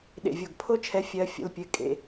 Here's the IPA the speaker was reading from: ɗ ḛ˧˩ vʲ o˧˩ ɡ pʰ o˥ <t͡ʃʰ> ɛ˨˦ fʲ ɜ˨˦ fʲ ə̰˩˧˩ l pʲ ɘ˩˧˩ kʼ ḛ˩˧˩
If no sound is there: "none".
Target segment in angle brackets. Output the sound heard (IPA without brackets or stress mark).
t͡ʃʰ